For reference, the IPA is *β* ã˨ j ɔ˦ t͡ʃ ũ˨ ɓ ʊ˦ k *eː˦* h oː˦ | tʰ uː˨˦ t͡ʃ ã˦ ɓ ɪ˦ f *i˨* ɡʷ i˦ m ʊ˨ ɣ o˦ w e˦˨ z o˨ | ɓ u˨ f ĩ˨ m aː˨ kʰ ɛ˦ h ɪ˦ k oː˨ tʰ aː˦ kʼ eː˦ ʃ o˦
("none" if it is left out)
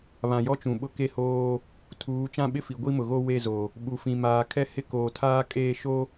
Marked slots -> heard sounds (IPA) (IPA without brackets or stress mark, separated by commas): β, e˦, i˨